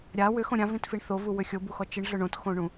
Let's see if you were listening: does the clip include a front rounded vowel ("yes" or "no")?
yes